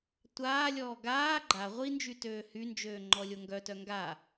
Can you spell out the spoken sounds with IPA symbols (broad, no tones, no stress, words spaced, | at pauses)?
tʷaːlʲɔː ɡaː ɡ͡ǃa ʁʷind͡ʒy tøːhynd͡ʒøː ŋ͡ǃɔlʲoŋɡœtœ ŋɡa